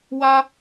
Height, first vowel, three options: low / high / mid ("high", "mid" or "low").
low